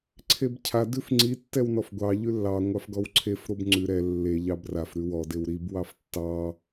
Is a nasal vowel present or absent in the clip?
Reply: absent